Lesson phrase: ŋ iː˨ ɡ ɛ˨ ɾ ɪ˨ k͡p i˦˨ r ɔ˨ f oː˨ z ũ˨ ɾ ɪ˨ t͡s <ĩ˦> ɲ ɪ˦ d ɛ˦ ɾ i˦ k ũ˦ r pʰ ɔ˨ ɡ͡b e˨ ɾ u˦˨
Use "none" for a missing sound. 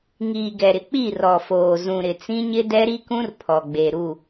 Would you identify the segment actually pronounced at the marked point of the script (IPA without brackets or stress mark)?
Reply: ĩ˦